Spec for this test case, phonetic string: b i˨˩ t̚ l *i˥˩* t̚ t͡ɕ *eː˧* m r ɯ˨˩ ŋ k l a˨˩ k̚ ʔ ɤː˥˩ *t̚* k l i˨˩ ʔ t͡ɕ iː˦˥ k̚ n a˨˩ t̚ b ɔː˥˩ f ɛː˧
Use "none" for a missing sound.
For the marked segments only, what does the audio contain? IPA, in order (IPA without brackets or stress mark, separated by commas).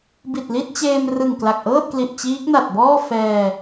i˥˩, eː˧, t̚